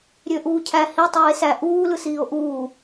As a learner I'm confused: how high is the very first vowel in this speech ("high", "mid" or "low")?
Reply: mid